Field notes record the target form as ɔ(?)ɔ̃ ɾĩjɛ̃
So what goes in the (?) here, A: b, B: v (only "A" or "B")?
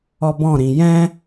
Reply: A